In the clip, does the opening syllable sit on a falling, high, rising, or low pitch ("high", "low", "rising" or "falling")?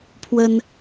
high